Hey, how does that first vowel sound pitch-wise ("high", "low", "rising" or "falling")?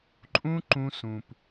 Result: high